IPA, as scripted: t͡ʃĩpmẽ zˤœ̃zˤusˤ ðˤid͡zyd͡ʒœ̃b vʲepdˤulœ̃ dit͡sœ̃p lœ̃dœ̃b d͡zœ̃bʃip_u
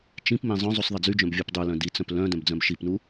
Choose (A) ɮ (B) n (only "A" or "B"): B